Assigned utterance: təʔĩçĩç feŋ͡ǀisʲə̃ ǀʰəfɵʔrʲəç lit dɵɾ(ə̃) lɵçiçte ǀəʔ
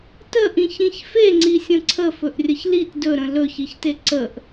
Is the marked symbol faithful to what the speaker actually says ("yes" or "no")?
yes